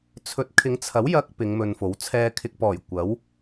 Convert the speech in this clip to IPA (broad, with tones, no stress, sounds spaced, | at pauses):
t͡sʰ ɵ˨˥ t̚ kʰ ɪ˨˧ ŋ t͡sʰ ɐ˨˥ w j ɐ˧ k̚ p ɪ˨˧ ŋ m ɵ˧ n f o˨˥ w t͡sʰ ɛː˧ kʰ ɪ˧ k̚ p ɔː˨˩ j kʷ ɐ˨˥ w